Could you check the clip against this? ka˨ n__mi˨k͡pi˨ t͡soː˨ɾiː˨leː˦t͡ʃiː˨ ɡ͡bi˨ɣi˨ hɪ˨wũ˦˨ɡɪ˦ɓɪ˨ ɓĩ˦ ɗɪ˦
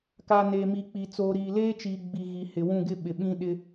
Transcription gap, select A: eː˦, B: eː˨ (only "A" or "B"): B